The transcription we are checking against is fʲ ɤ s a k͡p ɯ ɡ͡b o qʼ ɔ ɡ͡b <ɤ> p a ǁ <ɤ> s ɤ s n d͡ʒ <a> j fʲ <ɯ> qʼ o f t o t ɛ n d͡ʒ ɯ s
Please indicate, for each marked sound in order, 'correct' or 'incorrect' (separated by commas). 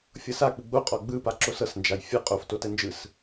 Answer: incorrect, incorrect, correct, incorrect